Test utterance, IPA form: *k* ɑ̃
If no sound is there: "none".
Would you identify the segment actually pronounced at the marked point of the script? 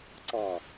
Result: ǀ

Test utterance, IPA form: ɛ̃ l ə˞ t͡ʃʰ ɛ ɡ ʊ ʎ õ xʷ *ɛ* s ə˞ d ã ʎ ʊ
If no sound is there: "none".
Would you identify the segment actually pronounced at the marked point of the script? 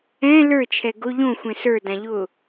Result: ɛ̃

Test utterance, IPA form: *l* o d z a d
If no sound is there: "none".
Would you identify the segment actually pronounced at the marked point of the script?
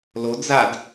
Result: l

